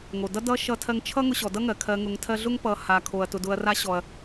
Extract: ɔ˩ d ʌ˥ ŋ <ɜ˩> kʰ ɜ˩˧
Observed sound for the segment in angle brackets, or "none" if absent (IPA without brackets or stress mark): ɜ˩